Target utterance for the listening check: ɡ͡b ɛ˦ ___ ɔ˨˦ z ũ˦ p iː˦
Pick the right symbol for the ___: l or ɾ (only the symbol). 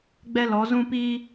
l